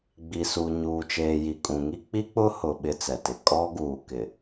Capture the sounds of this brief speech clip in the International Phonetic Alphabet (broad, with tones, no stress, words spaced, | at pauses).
ɡ͡bi˨su˨ ɲuː˨t͡ʃeː˨ ji˨kʼũ˨ŋi˦ k͡pi˦k͡pʊ˦hʊ˨ ɓɪ˦t͡sɛ˨tɪ˨ kʼɔ˦ɡuː˨kɪ˨